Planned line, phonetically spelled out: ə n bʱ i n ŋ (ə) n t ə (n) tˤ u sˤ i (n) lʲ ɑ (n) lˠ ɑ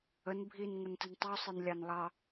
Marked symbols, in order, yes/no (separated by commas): yes, yes, yes, yes